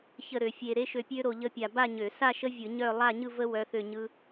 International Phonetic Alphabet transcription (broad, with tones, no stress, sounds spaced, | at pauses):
ç ə˥˧ ɾ ø˧ fʲ e˧ ɾ e˦˥ ʃ ø˧ pʲ ø˦˥ ɾ o˧ ʎ ə˦˥ pʲ a˧ b a˥˧ ɲ ø˧˩˧ s a˥˧ ʃ ə˦˥ vʲ ɯ˧˩˧ ɲ œ˥˧ lˠ a˥˧ ɲ ɯ˥˧ v ə˦˥ w œ˦˥ θ ø˥˧ ɲ ɯ˦˥